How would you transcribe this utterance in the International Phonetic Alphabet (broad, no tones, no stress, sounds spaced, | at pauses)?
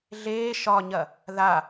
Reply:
ɮ eː ʃ ɒ ɲ ɐ | ð a